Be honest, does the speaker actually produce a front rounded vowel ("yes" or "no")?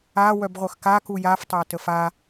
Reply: yes